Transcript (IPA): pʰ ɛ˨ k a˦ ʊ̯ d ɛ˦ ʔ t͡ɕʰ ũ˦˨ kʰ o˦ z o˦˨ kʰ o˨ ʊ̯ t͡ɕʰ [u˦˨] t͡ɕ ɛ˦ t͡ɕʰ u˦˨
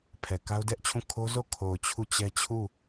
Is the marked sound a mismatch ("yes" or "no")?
no